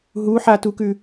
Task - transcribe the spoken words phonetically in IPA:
ɦuħatukʉ

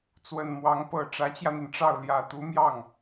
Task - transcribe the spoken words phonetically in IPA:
t͡swə˨˩nmwɑ˧˥ŋ pɤ˨˩ ʈ͡ʂä˧˥t͡ɕjä˧n̪i˩nʈ͡ʂɑ˥˩ʊ̯ ljä˨˩t̪u˧˥mjɑ˥˩ŋ

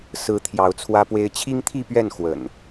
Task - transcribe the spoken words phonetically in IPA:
sɹ̩˨˦ t̪ʰjɑ˨˦ʊ̯t͡sʰwä˦pwe˦ɪ̯ t͡ɕʰi˦ŋt̪ʰi˥˨pɥɛ˥˨n xwə̰˨˩n

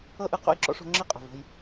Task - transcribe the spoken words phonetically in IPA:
ɤ˦ʔɯ˧ qo̰˦˨jǁɔ̰˦ʂo̤˧ ŋ͡ǁi˦qʼo̤˨vo̤˧j

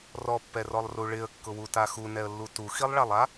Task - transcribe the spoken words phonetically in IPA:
rɔpːɛrɔlˠru ɭɪə̯kːʊwuta xunɛə̯lːu tuxilˠɭalˠa

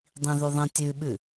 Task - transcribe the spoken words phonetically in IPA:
dˤĩðʉðˤĩ tʲʉɓʉ

